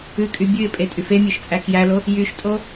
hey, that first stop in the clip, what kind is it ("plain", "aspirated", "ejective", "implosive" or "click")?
ejective